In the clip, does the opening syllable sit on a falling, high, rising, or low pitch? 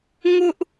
high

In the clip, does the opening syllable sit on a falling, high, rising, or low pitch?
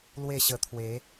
falling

